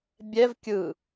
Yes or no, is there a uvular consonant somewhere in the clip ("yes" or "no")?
no